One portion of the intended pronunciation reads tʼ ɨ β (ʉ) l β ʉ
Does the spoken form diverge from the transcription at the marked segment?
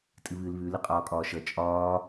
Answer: yes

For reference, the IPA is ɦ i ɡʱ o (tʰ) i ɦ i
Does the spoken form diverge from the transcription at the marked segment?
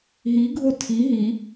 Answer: no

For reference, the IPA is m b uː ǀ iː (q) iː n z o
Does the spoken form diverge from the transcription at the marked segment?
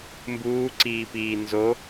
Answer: yes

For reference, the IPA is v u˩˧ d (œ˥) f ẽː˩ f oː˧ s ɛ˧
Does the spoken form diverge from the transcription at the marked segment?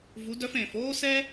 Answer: yes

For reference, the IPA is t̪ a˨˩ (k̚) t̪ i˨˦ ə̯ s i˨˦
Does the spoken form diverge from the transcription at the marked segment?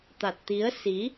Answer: yes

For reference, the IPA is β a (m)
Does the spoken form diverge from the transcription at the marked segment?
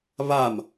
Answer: no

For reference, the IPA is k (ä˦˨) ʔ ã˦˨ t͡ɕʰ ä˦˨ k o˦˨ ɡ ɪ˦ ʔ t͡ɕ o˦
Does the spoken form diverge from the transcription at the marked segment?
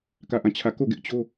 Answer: no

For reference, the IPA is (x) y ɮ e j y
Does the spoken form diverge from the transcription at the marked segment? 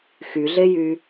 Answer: no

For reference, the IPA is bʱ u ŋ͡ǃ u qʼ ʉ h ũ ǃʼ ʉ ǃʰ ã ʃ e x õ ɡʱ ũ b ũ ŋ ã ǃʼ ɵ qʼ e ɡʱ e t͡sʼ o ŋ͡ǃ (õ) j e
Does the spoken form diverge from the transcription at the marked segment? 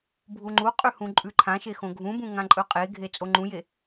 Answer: yes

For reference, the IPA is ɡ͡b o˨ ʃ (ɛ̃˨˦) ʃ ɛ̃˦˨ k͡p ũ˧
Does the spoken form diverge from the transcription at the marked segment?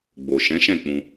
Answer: no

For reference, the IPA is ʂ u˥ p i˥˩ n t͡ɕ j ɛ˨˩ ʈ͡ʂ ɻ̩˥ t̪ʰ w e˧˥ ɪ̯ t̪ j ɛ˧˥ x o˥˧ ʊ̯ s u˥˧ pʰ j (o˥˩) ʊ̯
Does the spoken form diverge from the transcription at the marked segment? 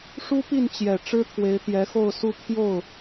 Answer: no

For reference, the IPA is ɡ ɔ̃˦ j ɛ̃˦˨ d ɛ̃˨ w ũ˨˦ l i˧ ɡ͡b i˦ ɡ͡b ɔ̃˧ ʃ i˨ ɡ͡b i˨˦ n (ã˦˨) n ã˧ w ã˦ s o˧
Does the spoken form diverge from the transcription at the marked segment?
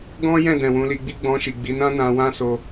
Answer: yes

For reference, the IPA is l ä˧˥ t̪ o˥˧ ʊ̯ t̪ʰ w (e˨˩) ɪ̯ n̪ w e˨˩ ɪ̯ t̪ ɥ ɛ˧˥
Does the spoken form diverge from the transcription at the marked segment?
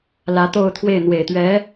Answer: yes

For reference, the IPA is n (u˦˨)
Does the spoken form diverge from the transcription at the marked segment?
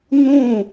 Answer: yes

